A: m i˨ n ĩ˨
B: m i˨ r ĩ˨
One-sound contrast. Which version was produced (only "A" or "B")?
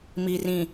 B